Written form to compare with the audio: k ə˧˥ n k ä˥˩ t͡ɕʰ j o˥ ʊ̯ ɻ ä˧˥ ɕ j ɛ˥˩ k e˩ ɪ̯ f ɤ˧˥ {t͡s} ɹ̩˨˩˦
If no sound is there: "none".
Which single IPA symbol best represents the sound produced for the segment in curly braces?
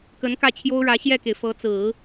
t͡s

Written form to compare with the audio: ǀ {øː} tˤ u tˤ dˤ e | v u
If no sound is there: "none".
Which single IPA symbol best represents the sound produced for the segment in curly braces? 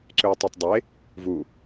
øː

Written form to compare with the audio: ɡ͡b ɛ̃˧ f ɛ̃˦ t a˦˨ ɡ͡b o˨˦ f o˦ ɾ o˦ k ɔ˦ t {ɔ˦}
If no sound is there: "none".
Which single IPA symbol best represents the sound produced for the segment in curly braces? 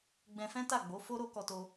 o˦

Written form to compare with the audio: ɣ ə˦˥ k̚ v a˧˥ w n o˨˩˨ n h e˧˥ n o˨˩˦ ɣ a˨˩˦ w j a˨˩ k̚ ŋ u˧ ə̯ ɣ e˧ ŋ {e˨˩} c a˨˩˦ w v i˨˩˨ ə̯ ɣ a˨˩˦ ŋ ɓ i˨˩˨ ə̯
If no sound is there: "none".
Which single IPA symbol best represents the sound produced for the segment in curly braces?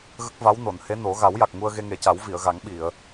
e˨˩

